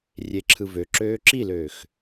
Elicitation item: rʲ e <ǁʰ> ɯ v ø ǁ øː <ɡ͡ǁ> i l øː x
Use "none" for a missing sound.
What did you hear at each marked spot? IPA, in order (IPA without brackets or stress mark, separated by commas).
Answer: ǁʰ, ǁ